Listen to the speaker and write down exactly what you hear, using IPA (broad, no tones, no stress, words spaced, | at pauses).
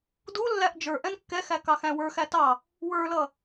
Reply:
du lːæʔd͡ʒə˞ʔɛ̃n kːɛxæ kɑxæ̃wə˞xæ tɑ | wə˞lʌ